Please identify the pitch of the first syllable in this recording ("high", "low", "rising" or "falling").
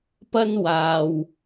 high